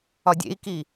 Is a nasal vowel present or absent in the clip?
absent